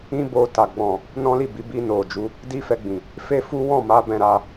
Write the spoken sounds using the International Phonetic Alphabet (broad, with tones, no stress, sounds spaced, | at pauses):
ĩ˦ b o˧ t a˨ ɡ͡b ɔ̃˨ | n ɔ̃˦ l i˦˨ b i˨˦ b i˧ n o˨ d͡ʒ u˨˦ | d i˦ f ɛ˧ ɡ͡b ĩ˨ | f e˦ f u˦ w ɔ̃˦˨ m a˨˦ b ɛ̃˧ ɾ a˧